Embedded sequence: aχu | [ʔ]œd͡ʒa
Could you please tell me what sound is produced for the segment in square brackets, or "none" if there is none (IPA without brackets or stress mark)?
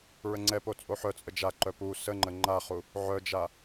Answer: ʕ